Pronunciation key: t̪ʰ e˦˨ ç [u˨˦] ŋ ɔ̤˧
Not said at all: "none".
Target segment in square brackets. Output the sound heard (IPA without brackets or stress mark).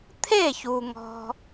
u˨